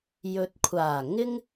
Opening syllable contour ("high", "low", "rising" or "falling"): low